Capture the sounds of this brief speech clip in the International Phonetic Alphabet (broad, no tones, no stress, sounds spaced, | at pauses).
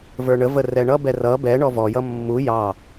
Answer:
v ə˞ ɳ ə v ə r ɛ ɳ ʌ b ɛ r ʌ b ɛ ɳ ɔ v ɔ j ʌ mː u j ɑ